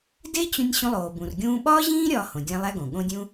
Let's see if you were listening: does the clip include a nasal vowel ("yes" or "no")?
yes